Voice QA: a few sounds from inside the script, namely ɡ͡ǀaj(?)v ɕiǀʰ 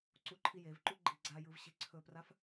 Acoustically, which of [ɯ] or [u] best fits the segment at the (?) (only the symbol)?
ɯ